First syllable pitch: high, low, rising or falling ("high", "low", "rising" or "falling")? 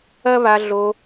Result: high